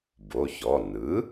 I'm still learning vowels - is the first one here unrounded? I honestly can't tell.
no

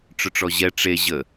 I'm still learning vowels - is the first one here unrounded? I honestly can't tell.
no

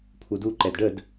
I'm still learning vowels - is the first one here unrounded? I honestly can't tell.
no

